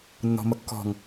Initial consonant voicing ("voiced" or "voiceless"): voiced